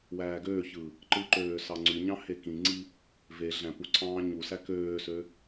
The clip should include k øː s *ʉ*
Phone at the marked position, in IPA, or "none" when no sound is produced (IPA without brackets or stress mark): ø